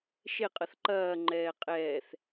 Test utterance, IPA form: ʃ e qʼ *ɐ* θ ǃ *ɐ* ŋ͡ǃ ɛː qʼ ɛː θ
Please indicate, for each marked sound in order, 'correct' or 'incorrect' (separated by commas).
correct, incorrect